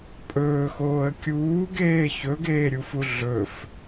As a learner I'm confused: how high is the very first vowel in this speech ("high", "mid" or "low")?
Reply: mid